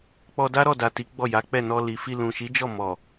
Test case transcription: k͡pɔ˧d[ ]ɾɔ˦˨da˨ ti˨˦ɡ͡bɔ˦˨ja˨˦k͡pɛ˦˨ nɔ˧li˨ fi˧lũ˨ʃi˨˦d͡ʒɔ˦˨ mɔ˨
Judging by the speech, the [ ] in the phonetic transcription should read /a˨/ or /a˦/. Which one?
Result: a˦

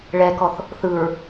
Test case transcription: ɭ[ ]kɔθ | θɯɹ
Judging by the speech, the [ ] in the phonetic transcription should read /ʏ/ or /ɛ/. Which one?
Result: ɛ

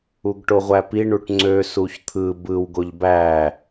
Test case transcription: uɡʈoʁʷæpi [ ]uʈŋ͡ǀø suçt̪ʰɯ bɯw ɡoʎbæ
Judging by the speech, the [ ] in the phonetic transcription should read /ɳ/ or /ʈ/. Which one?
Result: ɳ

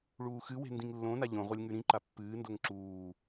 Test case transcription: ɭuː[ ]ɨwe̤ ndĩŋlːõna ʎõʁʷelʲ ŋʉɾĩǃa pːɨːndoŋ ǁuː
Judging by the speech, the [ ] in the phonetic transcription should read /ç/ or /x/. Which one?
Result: x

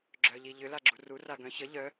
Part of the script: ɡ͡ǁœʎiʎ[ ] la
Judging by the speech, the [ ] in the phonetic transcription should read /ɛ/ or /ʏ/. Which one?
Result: ʏ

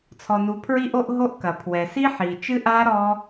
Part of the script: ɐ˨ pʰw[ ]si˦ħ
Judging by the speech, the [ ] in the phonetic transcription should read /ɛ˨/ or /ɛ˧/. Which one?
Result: ɛ˨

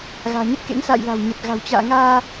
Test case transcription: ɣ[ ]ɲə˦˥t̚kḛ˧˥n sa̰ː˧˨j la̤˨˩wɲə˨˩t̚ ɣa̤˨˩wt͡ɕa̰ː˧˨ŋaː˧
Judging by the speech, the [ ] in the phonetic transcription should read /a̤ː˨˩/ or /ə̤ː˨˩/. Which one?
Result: a̤ː˨˩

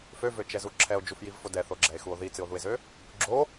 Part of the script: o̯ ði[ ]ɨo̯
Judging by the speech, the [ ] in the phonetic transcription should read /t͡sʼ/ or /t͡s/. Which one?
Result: t͡s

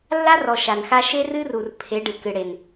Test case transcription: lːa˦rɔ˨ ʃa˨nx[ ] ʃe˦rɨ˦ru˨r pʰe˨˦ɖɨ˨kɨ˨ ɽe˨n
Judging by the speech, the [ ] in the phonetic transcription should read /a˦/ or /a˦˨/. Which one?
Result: a˦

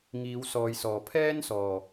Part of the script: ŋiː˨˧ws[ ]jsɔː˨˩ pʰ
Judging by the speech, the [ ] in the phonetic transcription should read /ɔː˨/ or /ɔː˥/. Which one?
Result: ɔː˨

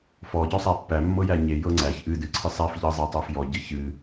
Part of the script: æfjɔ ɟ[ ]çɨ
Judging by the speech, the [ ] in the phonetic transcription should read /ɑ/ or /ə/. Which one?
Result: ə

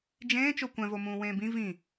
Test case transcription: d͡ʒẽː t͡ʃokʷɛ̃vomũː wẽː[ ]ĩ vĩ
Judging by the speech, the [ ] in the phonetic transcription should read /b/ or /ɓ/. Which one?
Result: b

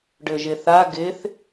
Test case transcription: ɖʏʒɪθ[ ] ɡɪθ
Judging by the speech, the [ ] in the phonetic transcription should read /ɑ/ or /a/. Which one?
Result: a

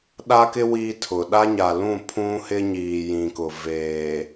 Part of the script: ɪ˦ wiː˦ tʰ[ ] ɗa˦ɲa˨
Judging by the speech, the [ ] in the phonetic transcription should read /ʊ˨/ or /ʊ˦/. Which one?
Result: ʊ˨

